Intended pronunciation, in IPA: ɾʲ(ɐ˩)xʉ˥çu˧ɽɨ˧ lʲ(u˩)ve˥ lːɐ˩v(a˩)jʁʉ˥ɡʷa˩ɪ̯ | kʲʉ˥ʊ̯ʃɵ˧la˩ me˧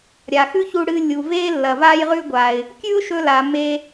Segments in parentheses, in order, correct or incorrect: incorrect: a˩, correct, incorrect: a˥

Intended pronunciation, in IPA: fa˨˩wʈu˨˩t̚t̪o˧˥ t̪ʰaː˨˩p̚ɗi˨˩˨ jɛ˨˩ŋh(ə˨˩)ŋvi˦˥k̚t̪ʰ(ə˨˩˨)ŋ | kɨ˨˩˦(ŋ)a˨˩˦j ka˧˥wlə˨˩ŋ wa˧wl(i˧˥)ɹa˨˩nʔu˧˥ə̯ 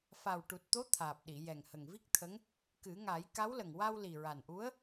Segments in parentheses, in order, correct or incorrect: correct, incorrect: ə˧˥, correct, incorrect: i˨˩

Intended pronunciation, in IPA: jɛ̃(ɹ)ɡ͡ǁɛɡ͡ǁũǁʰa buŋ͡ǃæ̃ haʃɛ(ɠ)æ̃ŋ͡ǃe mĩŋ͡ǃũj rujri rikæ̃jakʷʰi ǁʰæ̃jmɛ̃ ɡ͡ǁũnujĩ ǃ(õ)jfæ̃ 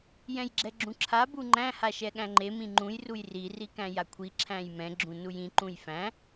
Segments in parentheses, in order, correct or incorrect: incorrect: j, correct, incorrect: ũ

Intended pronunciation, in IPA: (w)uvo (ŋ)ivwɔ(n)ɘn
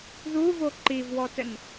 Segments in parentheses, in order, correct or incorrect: incorrect: ð, incorrect: ǃ, incorrect: t

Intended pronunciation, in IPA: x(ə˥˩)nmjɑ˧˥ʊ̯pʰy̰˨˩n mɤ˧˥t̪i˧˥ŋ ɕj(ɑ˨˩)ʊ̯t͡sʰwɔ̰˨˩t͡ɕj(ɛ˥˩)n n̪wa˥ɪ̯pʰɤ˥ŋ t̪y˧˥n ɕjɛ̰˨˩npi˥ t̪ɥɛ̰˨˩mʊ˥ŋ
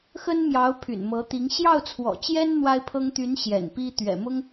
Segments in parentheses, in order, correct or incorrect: incorrect: ə˥, incorrect: ɑ˥˩, incorrect: ɛ˥

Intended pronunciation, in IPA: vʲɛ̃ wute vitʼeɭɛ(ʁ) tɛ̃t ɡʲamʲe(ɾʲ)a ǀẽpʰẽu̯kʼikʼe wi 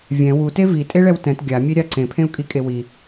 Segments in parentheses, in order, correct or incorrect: incorrect: w, correct

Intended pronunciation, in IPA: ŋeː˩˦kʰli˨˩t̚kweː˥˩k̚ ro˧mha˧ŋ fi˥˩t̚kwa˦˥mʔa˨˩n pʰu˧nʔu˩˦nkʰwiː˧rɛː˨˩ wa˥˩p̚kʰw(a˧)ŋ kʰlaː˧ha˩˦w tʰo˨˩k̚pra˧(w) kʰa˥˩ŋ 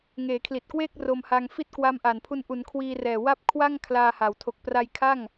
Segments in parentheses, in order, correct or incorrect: incorrect: a˥˩, incorrect: j

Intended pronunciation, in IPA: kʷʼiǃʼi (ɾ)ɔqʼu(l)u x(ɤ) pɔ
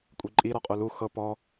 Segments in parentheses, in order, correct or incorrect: correct, correct, correct

